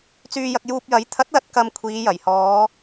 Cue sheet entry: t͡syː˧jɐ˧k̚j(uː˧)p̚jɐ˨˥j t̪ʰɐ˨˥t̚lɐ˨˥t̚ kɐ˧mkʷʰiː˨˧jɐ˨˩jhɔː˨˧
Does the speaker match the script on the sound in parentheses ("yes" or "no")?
yes